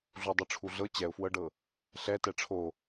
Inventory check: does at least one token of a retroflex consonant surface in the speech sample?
yes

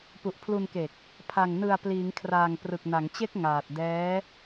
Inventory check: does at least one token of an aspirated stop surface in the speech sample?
yes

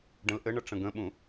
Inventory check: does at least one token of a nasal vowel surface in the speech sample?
yes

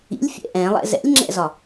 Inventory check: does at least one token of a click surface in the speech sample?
yes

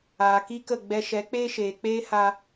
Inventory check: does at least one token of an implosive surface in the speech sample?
no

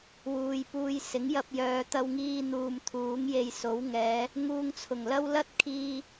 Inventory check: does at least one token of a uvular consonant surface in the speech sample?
no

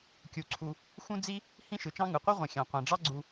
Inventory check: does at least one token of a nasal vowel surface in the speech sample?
yes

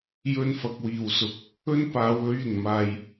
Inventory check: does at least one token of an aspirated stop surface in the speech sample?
no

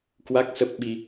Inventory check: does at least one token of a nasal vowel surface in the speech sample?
no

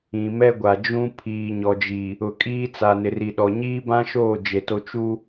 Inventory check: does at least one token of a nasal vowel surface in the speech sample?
yes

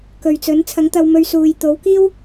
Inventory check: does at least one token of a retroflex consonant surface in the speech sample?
no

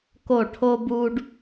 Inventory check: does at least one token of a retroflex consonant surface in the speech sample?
yes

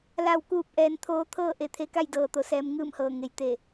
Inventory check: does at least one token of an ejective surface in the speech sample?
no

